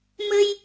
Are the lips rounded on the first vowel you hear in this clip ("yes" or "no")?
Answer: no